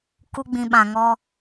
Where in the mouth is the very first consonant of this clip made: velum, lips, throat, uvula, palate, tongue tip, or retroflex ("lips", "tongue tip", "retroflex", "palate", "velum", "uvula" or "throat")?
velum